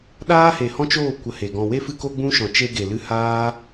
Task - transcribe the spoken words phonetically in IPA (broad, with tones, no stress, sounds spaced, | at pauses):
ɗ aː˦ h e˨ h ɔ̃˦ t͡ʃ oː˦˨ kʷ ə˧ h e˨ ɡ ɔ̃˧ w e˦ f ɨ˦ k o˦ ɡ͡b ũ˦ ʃ ɔ̃˨ t͡ʃ e˧ ɡ e˨ l ɨ˧ h aː˦